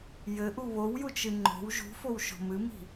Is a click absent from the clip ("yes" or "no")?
no